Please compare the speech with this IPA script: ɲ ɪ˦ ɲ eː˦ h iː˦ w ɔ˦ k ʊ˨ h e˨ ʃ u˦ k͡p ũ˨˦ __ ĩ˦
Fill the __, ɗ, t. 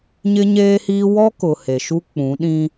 ɗ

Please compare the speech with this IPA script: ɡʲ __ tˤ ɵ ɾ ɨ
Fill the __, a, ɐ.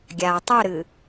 a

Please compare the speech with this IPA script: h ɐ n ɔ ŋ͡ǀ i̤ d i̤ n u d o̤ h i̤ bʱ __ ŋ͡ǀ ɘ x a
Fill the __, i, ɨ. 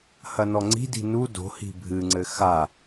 ɨ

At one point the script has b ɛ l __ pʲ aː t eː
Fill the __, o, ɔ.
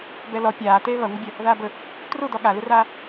ɔ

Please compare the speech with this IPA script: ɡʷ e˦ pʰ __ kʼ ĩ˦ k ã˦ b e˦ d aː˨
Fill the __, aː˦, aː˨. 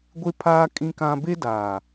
aː˦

